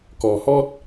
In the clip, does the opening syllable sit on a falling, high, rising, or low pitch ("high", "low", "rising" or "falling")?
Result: low